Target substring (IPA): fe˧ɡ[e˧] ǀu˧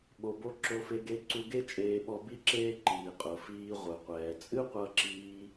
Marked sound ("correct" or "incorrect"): correct